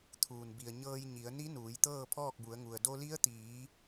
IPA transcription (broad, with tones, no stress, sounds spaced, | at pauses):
t̪ʰ uː˩ n b i˩ ə̯ ɲ ɤː˧ j ɲ i˩˧ ə̯ n i˧˥ n uː˩˧ j t̪ ɤː˥˨ pʰ ɔː˥˨ k̚ b u˩˧ ə̯ ŋ u˩ ə̯ d o˧ l i˧˥ ə̯ t̪ iː˩˧